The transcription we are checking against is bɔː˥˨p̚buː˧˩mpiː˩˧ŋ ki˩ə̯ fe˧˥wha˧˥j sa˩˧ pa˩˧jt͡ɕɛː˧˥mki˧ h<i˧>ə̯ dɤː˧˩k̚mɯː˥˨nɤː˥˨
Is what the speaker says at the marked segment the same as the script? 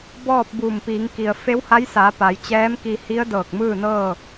no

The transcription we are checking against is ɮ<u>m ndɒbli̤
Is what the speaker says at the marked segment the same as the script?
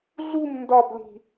yes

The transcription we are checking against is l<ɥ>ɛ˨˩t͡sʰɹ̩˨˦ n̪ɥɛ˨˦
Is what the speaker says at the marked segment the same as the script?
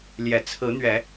no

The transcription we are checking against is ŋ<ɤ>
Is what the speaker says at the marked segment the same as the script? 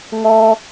no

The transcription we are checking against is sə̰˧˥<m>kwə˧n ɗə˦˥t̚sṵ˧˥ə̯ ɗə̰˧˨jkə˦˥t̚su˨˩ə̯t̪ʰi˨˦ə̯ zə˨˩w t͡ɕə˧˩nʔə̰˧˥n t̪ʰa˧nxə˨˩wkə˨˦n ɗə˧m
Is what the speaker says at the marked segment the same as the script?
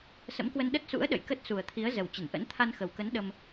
yes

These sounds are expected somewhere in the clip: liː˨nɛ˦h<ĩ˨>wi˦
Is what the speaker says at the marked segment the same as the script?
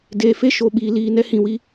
yes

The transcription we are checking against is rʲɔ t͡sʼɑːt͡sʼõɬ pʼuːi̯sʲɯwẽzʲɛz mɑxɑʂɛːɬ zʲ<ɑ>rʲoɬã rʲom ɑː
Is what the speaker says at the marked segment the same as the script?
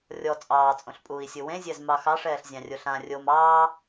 no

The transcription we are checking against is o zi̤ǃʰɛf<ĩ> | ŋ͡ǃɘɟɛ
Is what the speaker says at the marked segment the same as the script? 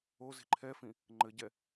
yes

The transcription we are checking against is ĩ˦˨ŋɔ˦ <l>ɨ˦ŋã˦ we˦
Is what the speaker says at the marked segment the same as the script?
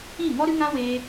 no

